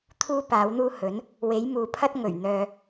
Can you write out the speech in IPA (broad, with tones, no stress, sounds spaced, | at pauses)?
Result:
t̪ʰ uː˥ p aː˨˥ w n̪ uː˥ h ɵ˨˥ n | w e˨˥ j m uː˨ pʰ ɐ˥ t̚ ŋ ɵ˨˩ ɥ n̪ œː˨